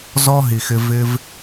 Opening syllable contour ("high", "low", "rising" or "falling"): high